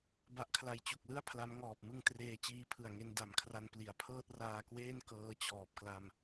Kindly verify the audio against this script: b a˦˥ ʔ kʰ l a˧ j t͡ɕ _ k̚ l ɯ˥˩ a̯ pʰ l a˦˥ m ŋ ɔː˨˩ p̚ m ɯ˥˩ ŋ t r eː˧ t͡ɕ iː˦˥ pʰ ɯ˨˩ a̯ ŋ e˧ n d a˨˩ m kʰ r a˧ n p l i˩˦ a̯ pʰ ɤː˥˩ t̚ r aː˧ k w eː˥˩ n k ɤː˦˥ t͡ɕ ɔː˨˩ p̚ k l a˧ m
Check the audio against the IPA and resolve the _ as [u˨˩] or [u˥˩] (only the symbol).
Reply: u˨˩